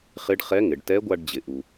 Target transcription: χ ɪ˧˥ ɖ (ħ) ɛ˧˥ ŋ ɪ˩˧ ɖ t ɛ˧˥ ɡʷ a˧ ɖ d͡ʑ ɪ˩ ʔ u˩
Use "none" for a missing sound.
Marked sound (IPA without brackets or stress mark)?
χ